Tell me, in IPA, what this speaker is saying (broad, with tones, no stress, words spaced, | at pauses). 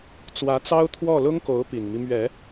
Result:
t͡swä˧˥t͡sɑ˥ʊ̯t̪ʰwɔ˥˩ lʊ˥ŋko˧˥ʊ̯ pi˨˩nmi˦ mɥɛ˨˩˦